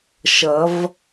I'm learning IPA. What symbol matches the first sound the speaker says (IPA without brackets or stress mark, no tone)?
ʃ